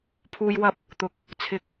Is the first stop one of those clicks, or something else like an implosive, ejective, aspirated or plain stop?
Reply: aspirated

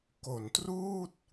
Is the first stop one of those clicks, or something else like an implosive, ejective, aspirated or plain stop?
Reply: plain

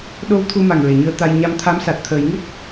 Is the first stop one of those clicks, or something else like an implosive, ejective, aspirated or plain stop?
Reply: implosive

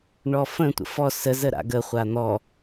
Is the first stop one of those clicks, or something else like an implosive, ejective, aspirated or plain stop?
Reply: plain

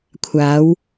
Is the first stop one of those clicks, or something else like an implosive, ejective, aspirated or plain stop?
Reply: aspirated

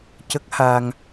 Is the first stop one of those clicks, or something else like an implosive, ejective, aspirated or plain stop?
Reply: plain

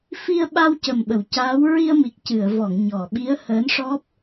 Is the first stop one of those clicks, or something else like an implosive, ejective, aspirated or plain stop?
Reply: implosive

